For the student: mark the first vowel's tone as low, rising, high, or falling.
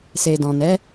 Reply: low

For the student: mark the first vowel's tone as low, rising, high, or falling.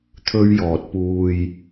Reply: high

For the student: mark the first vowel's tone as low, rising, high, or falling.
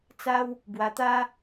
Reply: high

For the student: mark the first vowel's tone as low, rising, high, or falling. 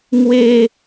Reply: low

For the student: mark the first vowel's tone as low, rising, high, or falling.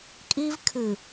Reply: high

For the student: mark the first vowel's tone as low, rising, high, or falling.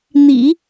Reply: low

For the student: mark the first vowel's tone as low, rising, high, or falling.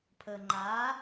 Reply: low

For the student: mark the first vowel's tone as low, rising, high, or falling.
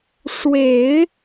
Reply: low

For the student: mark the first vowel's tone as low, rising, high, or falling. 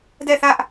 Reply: falling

